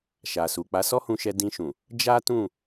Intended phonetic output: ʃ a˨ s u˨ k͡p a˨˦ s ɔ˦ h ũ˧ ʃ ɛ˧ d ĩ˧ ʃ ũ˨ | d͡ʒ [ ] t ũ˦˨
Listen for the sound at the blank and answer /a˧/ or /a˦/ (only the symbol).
a˦